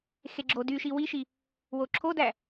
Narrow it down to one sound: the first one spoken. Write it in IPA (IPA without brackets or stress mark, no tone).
x